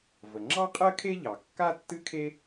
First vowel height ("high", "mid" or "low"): mid